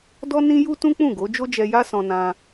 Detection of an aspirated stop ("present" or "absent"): absent